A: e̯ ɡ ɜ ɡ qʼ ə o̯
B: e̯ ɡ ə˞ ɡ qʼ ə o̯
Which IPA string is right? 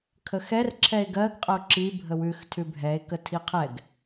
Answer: A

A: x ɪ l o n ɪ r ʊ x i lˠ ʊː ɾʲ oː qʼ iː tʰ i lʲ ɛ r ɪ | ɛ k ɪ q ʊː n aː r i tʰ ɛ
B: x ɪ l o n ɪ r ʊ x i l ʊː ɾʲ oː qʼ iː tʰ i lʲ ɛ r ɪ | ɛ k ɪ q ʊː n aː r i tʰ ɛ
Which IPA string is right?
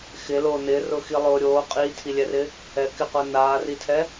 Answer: A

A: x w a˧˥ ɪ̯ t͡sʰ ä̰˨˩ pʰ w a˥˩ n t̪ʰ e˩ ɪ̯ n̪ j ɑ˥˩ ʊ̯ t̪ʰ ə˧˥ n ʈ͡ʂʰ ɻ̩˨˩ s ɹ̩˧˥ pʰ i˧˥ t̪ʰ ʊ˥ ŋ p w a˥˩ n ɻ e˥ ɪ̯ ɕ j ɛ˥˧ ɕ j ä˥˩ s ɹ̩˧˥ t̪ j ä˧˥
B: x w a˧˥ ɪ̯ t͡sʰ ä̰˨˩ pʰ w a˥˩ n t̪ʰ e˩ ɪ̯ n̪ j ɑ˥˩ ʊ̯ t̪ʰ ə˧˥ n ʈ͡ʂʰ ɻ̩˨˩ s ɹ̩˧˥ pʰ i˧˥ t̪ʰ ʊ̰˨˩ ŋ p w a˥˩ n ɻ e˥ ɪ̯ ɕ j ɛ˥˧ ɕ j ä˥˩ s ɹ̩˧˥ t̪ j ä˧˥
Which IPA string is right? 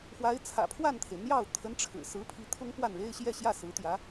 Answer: A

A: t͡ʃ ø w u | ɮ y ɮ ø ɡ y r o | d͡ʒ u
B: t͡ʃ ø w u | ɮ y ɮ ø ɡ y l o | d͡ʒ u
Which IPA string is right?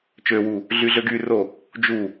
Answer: A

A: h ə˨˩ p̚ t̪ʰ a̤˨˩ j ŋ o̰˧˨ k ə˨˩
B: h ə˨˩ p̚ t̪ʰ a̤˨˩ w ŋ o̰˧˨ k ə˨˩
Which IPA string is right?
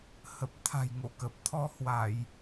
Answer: A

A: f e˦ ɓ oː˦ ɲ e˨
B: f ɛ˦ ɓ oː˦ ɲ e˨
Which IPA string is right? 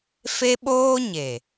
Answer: A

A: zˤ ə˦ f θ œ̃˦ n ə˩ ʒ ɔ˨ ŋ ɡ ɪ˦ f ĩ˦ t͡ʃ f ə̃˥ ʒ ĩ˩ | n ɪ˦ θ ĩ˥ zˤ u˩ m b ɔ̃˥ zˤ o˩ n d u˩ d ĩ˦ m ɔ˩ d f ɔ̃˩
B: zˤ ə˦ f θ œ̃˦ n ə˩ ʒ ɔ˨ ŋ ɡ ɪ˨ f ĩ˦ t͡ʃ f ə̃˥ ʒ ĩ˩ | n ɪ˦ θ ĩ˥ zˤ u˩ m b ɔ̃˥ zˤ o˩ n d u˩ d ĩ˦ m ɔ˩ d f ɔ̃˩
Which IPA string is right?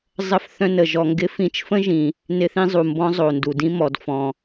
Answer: A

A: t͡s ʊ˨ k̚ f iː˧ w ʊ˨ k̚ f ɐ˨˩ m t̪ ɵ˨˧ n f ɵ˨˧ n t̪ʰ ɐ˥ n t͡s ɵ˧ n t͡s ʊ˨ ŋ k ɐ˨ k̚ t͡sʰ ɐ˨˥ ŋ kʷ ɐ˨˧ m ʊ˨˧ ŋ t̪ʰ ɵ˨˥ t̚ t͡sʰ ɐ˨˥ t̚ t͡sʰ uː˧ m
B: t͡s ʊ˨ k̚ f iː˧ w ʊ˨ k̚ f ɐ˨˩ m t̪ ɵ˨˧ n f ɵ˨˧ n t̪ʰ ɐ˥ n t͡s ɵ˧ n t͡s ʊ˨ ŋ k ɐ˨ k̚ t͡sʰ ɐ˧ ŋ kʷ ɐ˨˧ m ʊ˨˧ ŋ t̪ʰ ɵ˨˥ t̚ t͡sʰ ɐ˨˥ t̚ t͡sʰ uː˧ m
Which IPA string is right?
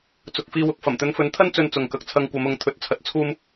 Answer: B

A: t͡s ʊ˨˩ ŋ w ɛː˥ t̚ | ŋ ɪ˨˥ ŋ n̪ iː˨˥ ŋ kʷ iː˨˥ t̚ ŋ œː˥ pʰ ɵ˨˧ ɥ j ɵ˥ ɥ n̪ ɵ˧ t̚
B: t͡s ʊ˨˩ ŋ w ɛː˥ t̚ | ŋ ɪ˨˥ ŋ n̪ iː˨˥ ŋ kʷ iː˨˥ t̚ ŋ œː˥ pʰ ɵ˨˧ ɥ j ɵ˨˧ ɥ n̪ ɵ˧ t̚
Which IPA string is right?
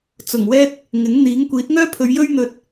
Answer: A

